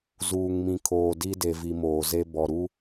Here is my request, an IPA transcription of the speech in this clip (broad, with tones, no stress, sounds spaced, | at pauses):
z uː˨ ŋ m ĩ˨ kʰ oː˨ d i˦ d e˨ v i˨ m oː˨ z e˦ b ɔ˨ ɾ u˦